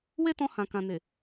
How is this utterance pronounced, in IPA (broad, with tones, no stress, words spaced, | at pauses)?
we˦tɔ̃˧hã˨ kã˨ne˨